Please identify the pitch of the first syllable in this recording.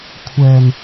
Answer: low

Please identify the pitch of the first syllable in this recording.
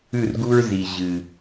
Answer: falling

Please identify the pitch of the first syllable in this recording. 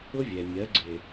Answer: high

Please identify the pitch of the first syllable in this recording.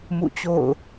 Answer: falling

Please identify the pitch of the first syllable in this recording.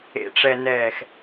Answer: low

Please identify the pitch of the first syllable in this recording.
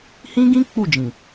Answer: high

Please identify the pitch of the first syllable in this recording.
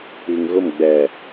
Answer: low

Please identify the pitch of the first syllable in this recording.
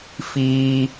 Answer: high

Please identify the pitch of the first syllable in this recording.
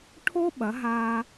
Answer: high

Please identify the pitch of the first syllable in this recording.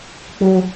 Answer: high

